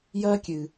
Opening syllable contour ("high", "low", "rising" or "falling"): high